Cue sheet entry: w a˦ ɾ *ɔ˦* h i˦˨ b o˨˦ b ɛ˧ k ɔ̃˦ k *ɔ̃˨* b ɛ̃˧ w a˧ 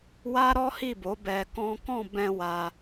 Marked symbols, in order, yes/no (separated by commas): yes, no